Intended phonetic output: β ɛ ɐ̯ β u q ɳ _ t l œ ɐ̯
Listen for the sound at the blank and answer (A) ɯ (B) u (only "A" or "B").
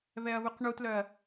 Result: B